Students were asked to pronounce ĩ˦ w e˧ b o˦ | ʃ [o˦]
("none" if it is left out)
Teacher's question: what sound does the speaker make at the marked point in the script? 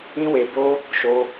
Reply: o˦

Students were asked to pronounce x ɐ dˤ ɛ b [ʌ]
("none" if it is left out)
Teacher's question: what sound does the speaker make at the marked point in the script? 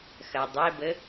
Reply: ə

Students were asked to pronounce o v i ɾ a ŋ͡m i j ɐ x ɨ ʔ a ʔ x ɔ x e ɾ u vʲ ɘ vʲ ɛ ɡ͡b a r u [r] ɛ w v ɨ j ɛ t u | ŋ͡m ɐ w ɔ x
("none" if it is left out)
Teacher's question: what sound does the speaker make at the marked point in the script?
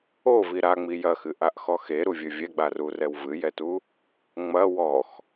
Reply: r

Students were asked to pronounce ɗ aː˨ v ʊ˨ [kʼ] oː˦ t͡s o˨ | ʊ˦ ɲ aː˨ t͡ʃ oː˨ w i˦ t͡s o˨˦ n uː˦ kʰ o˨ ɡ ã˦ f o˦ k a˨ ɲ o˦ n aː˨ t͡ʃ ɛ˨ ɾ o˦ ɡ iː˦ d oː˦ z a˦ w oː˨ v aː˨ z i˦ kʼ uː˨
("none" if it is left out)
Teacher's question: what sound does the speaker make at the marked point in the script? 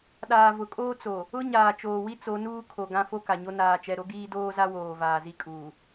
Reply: kʼ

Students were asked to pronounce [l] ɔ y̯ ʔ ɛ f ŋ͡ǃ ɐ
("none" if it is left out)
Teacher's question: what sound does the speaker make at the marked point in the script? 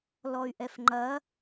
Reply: l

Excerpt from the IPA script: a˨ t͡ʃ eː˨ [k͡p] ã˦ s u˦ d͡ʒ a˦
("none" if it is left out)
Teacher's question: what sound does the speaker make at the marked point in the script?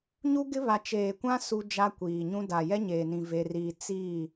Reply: kʷ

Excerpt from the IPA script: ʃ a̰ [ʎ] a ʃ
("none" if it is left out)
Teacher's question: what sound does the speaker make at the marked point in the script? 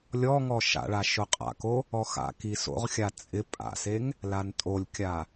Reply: ɭ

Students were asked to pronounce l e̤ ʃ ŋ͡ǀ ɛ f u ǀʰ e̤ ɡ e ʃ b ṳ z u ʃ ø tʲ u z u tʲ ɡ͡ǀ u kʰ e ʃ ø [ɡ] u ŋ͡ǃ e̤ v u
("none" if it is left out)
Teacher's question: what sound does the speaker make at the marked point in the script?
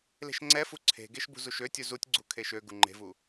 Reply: ɡ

